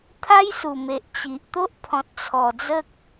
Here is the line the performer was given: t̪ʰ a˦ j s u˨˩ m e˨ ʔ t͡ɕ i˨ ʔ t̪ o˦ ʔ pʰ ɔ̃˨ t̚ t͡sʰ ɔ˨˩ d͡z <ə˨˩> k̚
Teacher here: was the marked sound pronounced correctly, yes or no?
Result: no